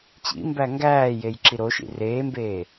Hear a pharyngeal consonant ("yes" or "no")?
no